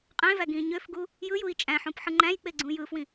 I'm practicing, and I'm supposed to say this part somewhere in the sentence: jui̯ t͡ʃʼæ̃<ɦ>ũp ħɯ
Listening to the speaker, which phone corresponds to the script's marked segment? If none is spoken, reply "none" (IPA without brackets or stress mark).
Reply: ħ